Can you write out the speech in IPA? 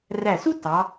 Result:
r æ˧˩ s u˥ t ɑ˩˧

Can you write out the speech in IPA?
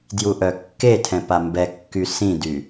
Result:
d j u ʔ œ kː e tʰ ɛ̃ p a m b ɛ kː y s ĩ d y

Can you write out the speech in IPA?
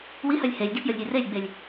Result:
w i h œ lʲ h e lʲ d i p j ə lʲ ɾʲ e r e lʲ ɡ͡b e lʲ

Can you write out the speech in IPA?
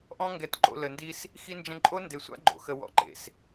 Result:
ʔ ɔ̃˦ ŋ ɡ ɛ˨ t ǃ o̰˨ l ə˨ n d i˦ s | x i˦ n d͡ʒ ə̃˦ ǃʼ o˦ n d e˨ sʷ a̰˦ ɡ͡ǃ o̰˨ x ə˨ w ɔ̰˨ ǃ ḛ˨ s

